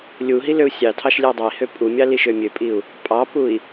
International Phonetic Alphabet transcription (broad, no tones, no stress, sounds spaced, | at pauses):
lʲ u ɦ i l ø u̯ sʲ ɑ tʰ ɑ ʃ lʲ ɛ i̯ dˤ ø i̯ h ø pʼ u mʲ ɑ l i ʃ ø mʲ ø pʼ i u̯ | pʼ ɑ p u i̯